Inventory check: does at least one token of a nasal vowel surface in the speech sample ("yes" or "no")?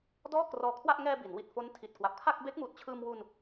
no